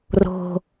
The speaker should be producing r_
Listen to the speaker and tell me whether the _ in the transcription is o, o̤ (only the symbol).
o̤